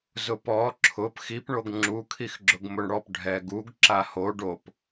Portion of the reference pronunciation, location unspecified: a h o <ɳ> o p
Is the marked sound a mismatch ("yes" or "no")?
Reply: yes